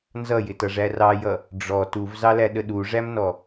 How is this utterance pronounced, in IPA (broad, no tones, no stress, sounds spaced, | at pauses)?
n z ʌ j ɪ t ʌ ʐ æ r ɑ j ʌ | ɖ͡ʐ ɔ t u v z ɑ l æ ɗ ə ɗ u ʐ æ m n ɔ